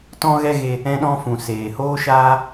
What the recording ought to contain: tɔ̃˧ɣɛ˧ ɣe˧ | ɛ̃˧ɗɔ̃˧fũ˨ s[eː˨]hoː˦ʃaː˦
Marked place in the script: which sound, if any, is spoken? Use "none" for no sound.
eː˨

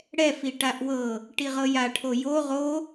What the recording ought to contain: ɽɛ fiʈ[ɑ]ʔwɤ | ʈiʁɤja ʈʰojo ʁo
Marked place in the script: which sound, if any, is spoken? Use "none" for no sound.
a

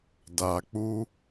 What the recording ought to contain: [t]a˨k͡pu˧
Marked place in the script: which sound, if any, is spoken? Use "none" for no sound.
d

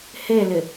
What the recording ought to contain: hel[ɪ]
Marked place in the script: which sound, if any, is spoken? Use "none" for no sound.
ɪ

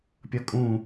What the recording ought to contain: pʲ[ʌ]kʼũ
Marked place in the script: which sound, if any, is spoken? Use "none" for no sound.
ʌ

